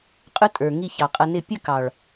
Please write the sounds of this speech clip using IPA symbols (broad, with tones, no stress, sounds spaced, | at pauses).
qʼ ʊ˦ tʼ ə˞˨ ŋ i˦˨ ç ɑ˨ qʼ ʌ˧ n ɪ˦˨ pʲ ə˦˨ k ɑ˨ ɭ